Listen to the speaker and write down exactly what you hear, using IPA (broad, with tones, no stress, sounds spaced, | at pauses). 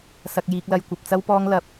s ɐ˨ k̚ j iː˨ k̚ l ɐ˨ j kʷ ɐ˨ p̚ t͡s ɐ˥ w p ɔː˥ ŋ l ɐ˧ p̚